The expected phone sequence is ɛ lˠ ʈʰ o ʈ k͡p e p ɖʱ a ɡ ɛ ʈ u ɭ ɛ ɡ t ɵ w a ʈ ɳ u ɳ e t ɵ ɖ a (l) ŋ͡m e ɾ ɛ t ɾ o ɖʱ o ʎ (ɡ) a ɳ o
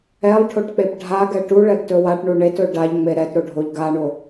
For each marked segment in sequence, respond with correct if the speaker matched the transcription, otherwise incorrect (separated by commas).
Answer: incorrect, correct